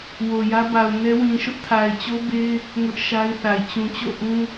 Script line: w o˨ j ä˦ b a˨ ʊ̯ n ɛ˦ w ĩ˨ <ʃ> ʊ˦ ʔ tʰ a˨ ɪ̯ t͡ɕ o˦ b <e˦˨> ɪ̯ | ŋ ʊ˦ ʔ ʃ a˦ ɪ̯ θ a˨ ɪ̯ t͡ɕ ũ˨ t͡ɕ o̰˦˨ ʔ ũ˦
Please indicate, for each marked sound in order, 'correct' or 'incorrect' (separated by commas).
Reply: correct, incorrect